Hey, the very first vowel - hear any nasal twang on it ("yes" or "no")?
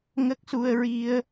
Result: no